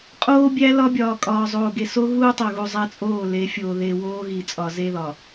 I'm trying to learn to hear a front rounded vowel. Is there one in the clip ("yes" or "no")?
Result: no